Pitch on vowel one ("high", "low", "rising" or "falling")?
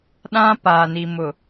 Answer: high